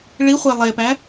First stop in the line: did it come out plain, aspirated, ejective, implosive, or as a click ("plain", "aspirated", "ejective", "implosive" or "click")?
plain